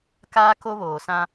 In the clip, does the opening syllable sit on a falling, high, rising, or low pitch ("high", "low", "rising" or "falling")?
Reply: high